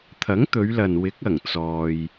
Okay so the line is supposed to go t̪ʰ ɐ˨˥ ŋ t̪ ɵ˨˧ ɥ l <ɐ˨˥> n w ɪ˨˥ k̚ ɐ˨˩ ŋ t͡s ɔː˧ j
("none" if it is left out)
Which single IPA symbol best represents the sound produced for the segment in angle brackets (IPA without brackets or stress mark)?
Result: ɐ˨